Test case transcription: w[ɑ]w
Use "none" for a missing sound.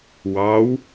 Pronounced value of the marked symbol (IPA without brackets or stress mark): ɑ